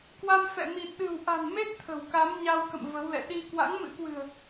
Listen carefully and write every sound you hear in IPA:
k w a˧ m f ɛ̰˧˨ m i˨˩ t̚ ɗ ɨ̤˨˩ w ʔ a̤˨˩ n m e˦˥ t̚ t̪ʰ ə̤˨˩ w k a˨˦ m ɲ a˧ w k ə̰˧˨ m v ə˨˦ w l ɛ̰˧˨ ɗ i˧ k w a̰˧˥ ŋ m ɨ̰˧˥ k w ɨ̤˨˩ ə̯

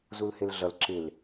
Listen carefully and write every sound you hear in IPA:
z u l h ɪ l ɮ ʌ l ǁ ɪ l

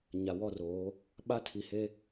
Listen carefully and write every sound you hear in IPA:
ɲ a˨ w ɔ˦˨ r oː˨˦ | ɓ a˦ tʰ iː˨ h e˦

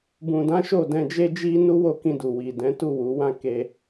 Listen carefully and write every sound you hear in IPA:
b ũ˨ d ã˨˦ ʃ o˦˨ d ɛ̃˧ d͡ʒ e˦ d͡ʒ i˦ n u˦ w o˦˨ k ĩ˧ d u˨ w i˨ d ɛ̃˨˦ t u˦˨ w u˨˦ w ã˦ k e˧

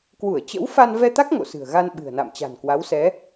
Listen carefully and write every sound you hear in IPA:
k w u˧˩ ə̯ t͡ɕ ə̰˧˥ w f a˧ n v ɛ˧ t̪ a˦˥ k̚ ŋ o̰˧˨ s ɨ̤˨˩ ə̯ ɣ a˧ n ɓ ɨ̤˨˩ ə̯ n a̰˧˨ m t͡ɕ a̤˨˩ n k w a˨˦ w s ɛ˨˦

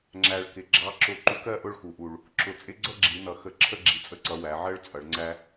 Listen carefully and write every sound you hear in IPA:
ŋ͡ǁ æ˨˩ ɭ k ɪ˩˧ ɡ͡ǁ ɑ˨˥ ǁ ʊ˧˩˧ ǃ u˨˥ k ɜ˥˨ ʔ ʊ˥˨ ɭ x u˩˧ ʔ u˨˩ ɭ | ǁ ʊ˨˩ t͡sʼ ɪ˦ ɡ͡ǀ ʌ˥˨ ɡ͡ǁ i˩˧ n ʌ˩˧ x ə˧˩˧ ǁʰ ə˥˨ ɡ͡ǁ i˨˩ t͡sʼ ə˦ ǀ ʌ˩˧ w æ˩˧ ʕ ɜ˦ ɭ t͡sʼ ʌ˩˧ ɭ ŋ͡ǀ æ˦

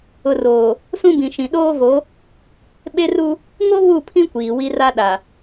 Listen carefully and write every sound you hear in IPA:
ʊ˨ r oː˨ | s ũ˦ b ĩ˨ ʃ ĩ˨ ɗ oː˦ v o˨˦ | ɓ e˦ r u˦ | ŋ o˦ β u˦˨ pʰ ĩ˦ kʷ iː˨ w i˦ r a˦ ɗ a˨

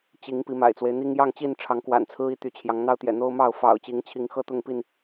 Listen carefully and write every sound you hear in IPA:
t͡ɕ i˨˦ ŋ p i˨˦ m a̰˨˩ ɪ̯ t͡s w e˦ ɪ̯ n̪ i˦ ŋ j ɑ˥˨ ŋ t͡ɕ i˥˨ n ʈ͡ʂʰ ɑ˨˦ ŋ k w a̰˨˩ n t͡sʰ ɹ̩˦ i˦ t̪ y˨˦ t͡ɕʰ j ɑ˨˦ ŋ n̪ ɑ˦ ʊ̯ t̪ j ɛ̰˨˩ n̪ o˦ ʊ̯ m ɑ˥˨ ʊ̯ f ɑ̰˨˩ ʊ̯ t͡ɕ i˨˦ ŋ t͡ɕʰ i˨˦ ŋ x ɤ˥˨ t̪ ʊ˥˨ ŋ p i˥˨ n

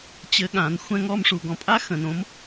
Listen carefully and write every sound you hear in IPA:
t͡ɕ ɘ˧˥ ɠ ã˩˥ n xʷ ɛ̃˥˧ ŋ ɔ˥˧ m ʂ u˨ ɡ ɔ̃˩˥ pʼ a˥ x ə̃˨ n õ˧˥ m

